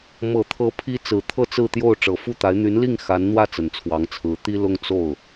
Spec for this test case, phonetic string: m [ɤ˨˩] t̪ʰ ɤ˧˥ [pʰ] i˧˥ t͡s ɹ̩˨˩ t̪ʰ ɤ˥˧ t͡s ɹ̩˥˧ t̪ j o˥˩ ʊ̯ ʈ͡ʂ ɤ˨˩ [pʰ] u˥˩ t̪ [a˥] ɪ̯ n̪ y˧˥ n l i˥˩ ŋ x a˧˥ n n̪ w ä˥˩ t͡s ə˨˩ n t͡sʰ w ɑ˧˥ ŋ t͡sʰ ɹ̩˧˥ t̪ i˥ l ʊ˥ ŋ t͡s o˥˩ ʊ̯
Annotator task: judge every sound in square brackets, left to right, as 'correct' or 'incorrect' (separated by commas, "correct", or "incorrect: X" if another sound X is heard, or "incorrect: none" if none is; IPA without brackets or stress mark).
correct, correct, incorrect: f, incorrect: a˧˥